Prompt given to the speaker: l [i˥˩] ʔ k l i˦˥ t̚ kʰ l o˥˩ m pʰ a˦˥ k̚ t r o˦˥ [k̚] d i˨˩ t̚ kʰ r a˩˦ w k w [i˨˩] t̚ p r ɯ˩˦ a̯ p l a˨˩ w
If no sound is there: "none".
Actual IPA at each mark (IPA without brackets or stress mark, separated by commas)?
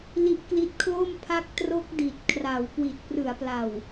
i˦˥, k̚, i˨˩